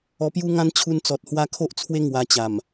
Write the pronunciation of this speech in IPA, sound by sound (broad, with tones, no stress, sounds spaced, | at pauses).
ɔ˧ p j u˦ ŋ ã˦ n t͡ɕʰ u˧ n t͡s ɔ˨ t̚ h w a˧ kʰ o˦ ʔ t͡sʰ w e˦ ŋ w a˧ t͡ɕ a˨˩ m